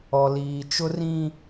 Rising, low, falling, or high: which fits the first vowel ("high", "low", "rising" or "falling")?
low